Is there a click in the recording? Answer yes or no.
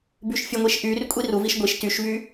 no